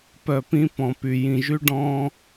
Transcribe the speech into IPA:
p œ˨ p ĩ˧ p ɔ̃˨ p y˨ j ĩ˨ ʒ y˧ ɖ ɔ̃ː˧

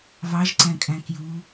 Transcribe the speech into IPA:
v ɑ ʒ ǀ æ̃ kʼ æ̃ k j u

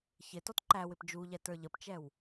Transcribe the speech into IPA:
ç ɪ t ɔ t ǃ æ w ɪ p d͡ʒ u ʎ ɛ t ə˞ ʎ ə p t͡ʃ ɛ w

